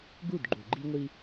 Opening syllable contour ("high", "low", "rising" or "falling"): falling